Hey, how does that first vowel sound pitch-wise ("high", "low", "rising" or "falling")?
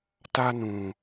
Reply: high